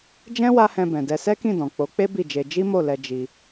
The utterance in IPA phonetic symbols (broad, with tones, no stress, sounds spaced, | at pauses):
d͡ʒ ɛ̃˦ w a˦ h ɛ̃˧ b ɛ̃˨ d ɛ˧ s ɛ˦ k ĩ˦˨ d ɔ̃˨ k͡p o˨˦ k͡p e˦ b i˦˨ d͡ʒ e˧ d͡ʒ i˦ m o˦˨ l ɛ˧ d͡ʒ i˧